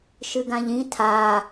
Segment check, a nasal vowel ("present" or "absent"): present